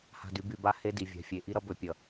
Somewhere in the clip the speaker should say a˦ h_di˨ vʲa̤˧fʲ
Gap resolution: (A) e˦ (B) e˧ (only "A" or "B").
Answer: A